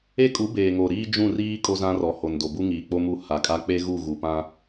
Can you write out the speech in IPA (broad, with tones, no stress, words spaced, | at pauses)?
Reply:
e˦kʼu˨˦ beː˨ŋo˨ ɾiː˦d͡ʒũ˦˨riː˦ kʼo˦zã˦rɔ˨ ho˨ndo˨bu˦ ŋiː˨ k͡po˦mu˦˨ ha˨kʼa˦ k͡pe˦ ɣu˦˨ɣu˨pã˦